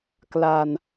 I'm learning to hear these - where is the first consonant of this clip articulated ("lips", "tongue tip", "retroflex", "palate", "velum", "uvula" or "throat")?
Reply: velum